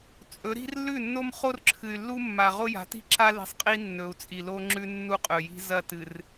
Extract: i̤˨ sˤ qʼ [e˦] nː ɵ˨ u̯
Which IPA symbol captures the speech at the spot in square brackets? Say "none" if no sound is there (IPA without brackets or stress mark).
i˦